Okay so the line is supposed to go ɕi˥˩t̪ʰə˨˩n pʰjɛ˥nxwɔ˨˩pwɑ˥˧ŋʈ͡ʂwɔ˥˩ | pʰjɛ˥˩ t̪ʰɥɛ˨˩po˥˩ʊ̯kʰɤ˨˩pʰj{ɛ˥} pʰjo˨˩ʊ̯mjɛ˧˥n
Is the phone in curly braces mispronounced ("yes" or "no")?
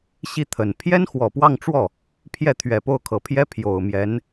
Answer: no